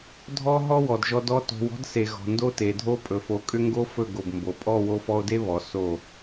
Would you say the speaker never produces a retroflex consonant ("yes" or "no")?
yes